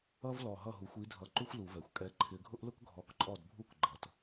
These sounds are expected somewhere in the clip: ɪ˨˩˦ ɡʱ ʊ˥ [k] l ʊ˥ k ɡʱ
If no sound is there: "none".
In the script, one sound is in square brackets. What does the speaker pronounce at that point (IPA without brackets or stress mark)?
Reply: ʔ